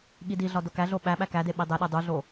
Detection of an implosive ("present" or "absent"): present